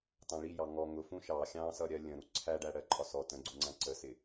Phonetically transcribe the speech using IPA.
tɑ̃ɭijɑ ŋɔ ŋʊfũ ʃɑ xʲɑ̃sʌɾʲɜ lʲə̃ɾu ǀʰæɖæɽɜ ǃʼɒsɔ tə̃ɡ͡ǀuŋ͡ǀæ̃ ǀəsɪ

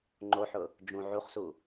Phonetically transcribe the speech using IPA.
ŋ͡ǃoħʊ | d͡ʒũ ʕuχsu

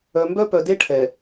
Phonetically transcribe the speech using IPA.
œ˨mbœ˦pœ˨ de˦ʈʰɛ˨

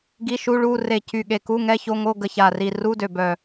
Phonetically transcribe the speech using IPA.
ɡi˧˥˧ ʃu˧˥˧ɭu˧˥˧ re˧˩cy˧˩ɠe˧˩ku˧˥˧ ŋɛ˧˥˧ço˧˥˧ŋo˧˥˧ɡə˧˩ ça˧˩ri˧˩ ru˧˥˧dø˧˩ bœ˧˩

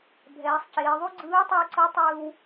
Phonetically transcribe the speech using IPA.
bʱɛː˩˧sˤceː˩˧ðˤu˥ ɡ͡ǀɯː˧˥o̯tˤɯ˧o̯ǀɤ˧˥ tˤɯː˧w

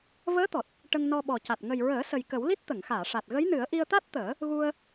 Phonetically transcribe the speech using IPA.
vəː˧˥t̪ɔ˨˩t̚ | ʈə˧ŋ nɔ˧ɓɔ˨˩ca˨˩t̚ ŋə˨˩jɹəː˨˩˦ sə˨˩jkə˨˩˦wli˦˥t̚ t̪ə˨˩˨ŋxaː˨˩˨ʂa˨˩t̚ ɣə˧˥jnɨ˨˩˦ə̯ ʔi˧ə̯t̪a˦˥t̚t̪əː˨˩˦ | ɣu˧ə̯

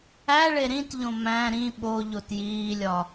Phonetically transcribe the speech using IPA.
æɭe ɾĩtʎõ mæ̃ ɾĩ ɓo ʎotjiːlʲɒ

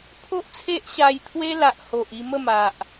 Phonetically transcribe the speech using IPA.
pʰo˦ʔt͡sʰe˦ʔ ɕa˧jt̪ʰwe˦la˨ʔ ho˨ʔ i˧mə˥˧ma˨ʔ

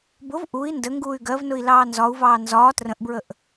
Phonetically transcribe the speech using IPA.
bʊv ʔui̯ ndə ŋɡuːy̯ɡɜvnʊi̯ lɑːnzɒu̯vɑː nzɒː trə̃ʔbɹəʔ

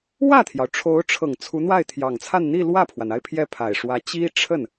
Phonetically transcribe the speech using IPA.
wä˥˩t̪ʰjɑ˩ʊ̯ʈ͡ʂʰo˧˥ʊ̯ʈ͡ʂʰɤ˨˩ŋ t͡sʰu˧˥n̪wa˥˩ɪ̯t̪ʰjɑ˨˩ŋt͡sʰa˥˧n n̪i˥˧lwä˥˩pʰwa˩na˥˧ɪ̯ pʰjɛ˥˩pʰa˨˩ɪ̯ʂwä˧˥ t͡ɕi˥ʈ͡ʂʰə˥˩n

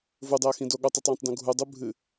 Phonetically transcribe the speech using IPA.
vudˤeə̯xĩdo ɠotˤʉtˤjẽtˤdõ ɡʱudˤu bʱɨ

